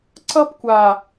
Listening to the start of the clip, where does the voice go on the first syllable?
high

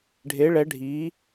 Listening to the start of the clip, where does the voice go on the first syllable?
rising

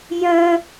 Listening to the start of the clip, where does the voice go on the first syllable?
high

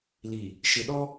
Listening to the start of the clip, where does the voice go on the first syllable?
low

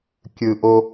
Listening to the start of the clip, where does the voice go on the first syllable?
low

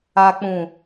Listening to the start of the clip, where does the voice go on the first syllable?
low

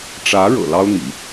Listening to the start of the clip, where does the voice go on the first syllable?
rising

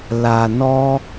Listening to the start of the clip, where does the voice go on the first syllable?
low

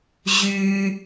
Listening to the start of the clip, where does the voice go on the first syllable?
high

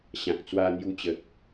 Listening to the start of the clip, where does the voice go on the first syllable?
low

